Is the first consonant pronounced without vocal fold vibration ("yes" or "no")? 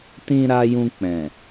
yes